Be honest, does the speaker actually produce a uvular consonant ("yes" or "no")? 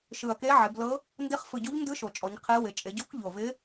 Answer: yes